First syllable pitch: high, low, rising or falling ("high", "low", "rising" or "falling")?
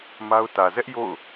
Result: high